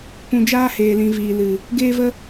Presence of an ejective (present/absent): absent